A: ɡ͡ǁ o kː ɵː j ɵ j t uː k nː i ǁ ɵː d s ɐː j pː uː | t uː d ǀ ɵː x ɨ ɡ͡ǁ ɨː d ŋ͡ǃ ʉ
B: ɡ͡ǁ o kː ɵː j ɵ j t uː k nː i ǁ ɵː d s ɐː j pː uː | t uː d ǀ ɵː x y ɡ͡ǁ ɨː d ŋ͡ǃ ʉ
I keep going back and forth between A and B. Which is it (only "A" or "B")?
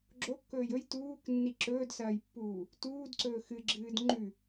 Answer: A